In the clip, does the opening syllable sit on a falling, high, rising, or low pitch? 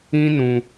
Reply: high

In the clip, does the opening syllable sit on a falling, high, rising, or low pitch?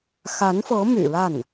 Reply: rising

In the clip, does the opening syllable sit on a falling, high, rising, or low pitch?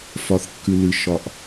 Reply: low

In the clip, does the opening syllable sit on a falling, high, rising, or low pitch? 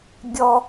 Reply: high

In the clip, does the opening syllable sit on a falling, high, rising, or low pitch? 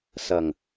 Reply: low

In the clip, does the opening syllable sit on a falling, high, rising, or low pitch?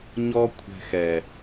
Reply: high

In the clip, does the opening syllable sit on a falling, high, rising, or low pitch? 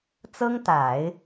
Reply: high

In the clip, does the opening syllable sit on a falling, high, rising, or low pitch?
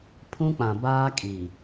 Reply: high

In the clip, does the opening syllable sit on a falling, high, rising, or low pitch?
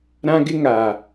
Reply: high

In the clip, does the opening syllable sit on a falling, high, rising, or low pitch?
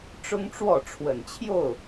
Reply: high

